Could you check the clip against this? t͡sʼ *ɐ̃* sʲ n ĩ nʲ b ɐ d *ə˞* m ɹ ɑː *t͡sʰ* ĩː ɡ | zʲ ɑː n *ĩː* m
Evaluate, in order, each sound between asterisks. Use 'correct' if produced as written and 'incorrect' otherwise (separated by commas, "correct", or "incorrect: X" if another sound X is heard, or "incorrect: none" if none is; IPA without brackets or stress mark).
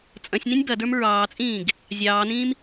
correct, correct, incorrect: t͡sʼ, correct